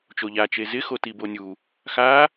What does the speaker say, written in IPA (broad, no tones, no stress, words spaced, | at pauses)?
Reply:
t͡ʃoʎa t͡ʃezɪ xotibonʲu | xa